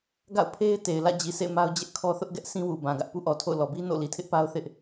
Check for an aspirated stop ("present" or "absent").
present